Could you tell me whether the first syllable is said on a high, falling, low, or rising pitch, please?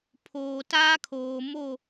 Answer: low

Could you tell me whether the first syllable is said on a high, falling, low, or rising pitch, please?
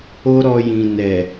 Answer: high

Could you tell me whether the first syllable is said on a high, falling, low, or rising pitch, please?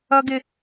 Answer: high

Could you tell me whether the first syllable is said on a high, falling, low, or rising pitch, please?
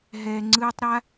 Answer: low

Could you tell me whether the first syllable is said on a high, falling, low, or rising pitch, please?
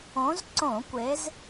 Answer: rising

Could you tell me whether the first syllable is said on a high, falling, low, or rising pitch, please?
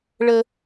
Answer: high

